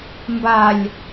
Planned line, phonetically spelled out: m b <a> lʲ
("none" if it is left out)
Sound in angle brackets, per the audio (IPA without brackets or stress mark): a